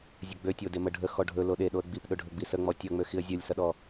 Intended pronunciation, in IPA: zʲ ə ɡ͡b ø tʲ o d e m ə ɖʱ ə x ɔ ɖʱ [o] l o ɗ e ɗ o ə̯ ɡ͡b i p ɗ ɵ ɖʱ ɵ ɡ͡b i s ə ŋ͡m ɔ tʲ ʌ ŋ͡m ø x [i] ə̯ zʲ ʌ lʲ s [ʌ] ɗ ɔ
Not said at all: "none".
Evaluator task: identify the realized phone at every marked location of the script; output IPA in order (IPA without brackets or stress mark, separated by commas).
ɵ, i, ʌ